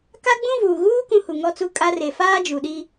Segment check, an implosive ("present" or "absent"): present